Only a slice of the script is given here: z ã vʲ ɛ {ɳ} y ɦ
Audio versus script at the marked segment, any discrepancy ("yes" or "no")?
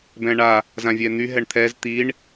yes